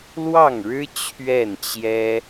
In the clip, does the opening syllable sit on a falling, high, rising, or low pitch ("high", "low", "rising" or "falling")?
falling